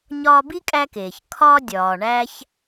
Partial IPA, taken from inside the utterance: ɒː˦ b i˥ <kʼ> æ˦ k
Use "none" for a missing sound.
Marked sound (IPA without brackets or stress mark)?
kʼ